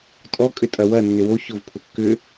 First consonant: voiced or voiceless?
voiceless